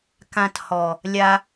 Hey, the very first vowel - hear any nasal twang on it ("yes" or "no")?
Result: yes